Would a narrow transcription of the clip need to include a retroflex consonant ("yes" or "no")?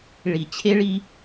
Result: yes